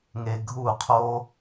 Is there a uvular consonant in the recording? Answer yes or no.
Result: yes